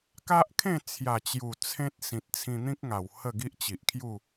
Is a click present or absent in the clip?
absent